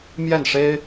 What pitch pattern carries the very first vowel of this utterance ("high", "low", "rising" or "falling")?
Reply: falling